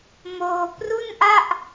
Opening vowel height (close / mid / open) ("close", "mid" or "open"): mid